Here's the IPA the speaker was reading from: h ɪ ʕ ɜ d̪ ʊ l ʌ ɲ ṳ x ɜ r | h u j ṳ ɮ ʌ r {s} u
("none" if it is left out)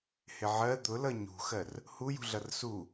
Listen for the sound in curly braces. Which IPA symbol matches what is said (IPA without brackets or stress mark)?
s